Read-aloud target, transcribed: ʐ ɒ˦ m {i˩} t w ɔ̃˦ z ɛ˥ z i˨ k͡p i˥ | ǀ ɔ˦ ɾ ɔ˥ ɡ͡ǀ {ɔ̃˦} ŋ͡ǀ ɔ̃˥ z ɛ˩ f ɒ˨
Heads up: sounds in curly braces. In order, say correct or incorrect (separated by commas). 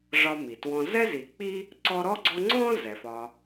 correct, incorrect